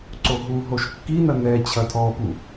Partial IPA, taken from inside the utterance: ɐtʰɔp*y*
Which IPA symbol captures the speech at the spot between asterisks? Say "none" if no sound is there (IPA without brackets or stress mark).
u